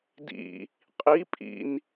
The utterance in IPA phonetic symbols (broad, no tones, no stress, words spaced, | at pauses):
dḭ | qʼi pʼḭn